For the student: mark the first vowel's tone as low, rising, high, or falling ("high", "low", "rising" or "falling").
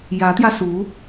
rising